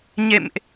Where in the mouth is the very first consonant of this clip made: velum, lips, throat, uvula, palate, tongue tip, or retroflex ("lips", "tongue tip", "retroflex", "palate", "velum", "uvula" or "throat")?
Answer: palate